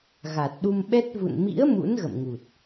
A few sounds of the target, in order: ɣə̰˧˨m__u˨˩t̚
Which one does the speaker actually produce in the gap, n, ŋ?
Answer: ŋ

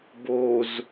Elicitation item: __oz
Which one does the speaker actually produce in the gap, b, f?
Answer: b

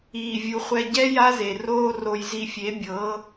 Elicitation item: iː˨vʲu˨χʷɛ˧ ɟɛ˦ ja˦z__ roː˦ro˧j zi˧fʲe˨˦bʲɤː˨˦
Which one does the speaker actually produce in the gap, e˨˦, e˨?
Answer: e˨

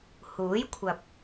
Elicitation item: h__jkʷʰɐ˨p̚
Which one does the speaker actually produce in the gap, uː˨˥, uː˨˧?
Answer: uː˨˥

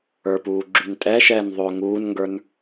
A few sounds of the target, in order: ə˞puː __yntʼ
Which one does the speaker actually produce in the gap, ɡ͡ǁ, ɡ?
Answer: ɡ͡ǁ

